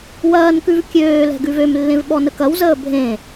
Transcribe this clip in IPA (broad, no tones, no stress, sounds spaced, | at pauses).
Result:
w ɐː n k ʉ v kʲ øː l ɛ̤ ɡ ʉ v ø m lː ẽ v ɓ ɔ n ə k ɐ w z əː bʱ ẽ